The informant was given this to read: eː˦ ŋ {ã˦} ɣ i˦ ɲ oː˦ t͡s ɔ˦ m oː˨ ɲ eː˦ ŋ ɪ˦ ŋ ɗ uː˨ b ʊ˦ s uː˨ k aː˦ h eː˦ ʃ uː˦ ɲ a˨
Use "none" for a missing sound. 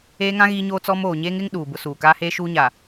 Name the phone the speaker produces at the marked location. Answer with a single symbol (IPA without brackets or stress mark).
ã˦